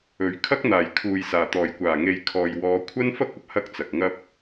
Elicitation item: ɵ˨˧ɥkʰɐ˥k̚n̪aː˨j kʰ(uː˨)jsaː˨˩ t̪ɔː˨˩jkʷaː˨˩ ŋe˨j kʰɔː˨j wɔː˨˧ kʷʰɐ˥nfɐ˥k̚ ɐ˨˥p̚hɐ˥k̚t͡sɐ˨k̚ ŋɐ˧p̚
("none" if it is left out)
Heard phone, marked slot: uː˨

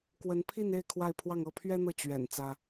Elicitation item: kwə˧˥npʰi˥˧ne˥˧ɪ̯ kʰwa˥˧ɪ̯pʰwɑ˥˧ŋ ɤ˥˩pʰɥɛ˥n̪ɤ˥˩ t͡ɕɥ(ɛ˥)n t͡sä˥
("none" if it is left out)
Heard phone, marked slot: ɛ̰˨˩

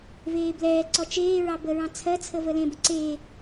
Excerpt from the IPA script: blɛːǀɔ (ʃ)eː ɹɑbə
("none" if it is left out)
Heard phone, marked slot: t͡ʃ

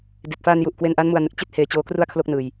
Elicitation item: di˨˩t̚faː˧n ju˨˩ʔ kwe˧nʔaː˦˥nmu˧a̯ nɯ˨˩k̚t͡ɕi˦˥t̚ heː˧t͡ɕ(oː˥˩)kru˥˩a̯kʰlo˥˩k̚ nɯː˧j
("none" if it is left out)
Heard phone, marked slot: oː˦˥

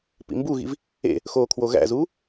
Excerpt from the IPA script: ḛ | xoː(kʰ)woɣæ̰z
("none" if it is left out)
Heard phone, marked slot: kʰ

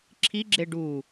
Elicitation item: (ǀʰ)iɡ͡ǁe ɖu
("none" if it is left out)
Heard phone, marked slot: ǁʰ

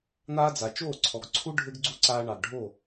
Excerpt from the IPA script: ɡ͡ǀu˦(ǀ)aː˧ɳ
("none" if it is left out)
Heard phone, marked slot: ǀ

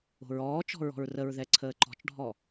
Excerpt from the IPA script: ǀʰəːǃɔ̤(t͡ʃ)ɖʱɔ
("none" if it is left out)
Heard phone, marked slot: t͡ʃ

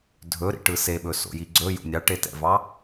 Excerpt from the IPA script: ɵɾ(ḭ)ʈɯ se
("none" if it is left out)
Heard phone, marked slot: ḭ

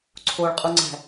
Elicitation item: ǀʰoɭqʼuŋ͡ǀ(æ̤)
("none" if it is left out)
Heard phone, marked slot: æ̤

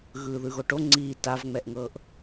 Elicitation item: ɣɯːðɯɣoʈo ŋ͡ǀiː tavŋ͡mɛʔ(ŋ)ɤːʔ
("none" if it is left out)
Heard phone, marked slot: ŋ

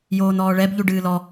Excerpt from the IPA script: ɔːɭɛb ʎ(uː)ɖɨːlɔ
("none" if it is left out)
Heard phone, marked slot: u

